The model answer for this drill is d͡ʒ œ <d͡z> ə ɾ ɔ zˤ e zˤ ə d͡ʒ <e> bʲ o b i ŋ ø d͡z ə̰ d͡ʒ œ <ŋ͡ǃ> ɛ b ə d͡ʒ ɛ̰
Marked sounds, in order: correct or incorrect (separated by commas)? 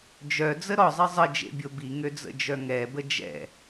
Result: correct, incorrect, incorrect